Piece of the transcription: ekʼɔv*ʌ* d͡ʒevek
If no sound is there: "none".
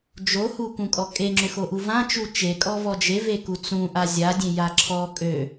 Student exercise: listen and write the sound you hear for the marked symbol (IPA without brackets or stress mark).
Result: ɔ